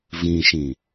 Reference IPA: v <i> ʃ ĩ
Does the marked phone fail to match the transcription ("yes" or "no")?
yes